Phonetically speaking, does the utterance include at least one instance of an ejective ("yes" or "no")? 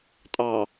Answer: yes